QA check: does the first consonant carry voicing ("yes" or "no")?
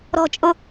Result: yes